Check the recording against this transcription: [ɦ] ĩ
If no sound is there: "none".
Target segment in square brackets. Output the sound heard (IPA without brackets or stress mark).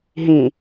ɦ